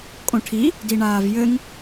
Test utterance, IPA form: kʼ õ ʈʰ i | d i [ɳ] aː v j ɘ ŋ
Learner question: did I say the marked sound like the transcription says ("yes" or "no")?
yes